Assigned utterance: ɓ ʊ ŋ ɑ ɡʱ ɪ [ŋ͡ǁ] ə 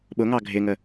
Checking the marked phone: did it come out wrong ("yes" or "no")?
yes